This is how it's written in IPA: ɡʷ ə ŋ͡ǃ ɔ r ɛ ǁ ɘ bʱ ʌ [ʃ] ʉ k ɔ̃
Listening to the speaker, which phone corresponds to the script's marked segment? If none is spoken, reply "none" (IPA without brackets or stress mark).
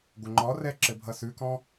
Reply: s